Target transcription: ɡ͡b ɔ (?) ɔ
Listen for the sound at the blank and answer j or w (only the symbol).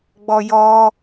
j